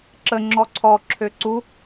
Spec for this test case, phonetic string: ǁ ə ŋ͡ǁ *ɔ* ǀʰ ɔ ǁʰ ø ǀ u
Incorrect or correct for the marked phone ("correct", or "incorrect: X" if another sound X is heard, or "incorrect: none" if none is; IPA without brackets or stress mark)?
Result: correct